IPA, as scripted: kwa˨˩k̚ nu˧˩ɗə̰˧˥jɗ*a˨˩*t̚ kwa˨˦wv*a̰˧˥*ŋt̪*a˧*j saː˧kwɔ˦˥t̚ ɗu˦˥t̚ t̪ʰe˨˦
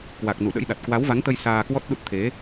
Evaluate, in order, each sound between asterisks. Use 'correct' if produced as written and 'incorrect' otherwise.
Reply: correct, incorrect: a˨˦, incorrect: ə˧

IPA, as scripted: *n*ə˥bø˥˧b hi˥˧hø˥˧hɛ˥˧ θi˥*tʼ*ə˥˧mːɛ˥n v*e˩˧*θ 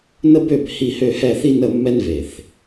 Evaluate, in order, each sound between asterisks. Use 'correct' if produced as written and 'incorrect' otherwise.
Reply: correct, incorrect: n, incorrect: e˧˩

